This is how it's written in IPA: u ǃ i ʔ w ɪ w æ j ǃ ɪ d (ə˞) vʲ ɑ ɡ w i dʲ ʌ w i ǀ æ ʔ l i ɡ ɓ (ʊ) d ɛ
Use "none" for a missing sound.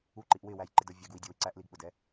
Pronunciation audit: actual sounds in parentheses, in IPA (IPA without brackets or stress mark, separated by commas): ə˞, ʊ